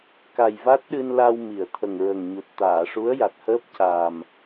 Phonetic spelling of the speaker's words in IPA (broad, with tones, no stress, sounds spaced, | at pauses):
k a˨˩ j v a˦˥ t̚ ɗ ɨ˧ n l a˧ w m i˨˩˨ ə̯ t̪ʰ ə˨˩ ŋ ɹ ə˨˩ ŋ ɲ u˨˩ t̚ t̪ aː˨˩˨ ʂ u˧˥ ə̯ j a˨˩ t̚ h əː˦˥ p̚ c a˨˩ m